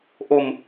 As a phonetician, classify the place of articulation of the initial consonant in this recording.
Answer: glottal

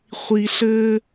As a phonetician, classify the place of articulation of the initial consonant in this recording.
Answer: uvular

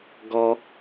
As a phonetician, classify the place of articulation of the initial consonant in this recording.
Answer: velar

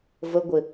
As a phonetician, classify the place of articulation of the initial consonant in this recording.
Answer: labial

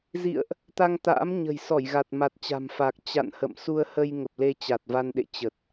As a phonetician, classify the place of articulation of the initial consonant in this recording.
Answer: alveolar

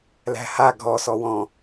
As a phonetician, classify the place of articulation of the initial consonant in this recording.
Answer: alveolar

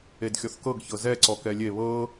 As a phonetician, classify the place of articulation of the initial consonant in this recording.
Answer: alveolar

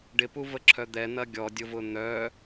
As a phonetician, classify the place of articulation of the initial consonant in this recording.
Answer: retroflex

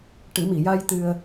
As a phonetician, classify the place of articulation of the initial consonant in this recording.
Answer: retroflex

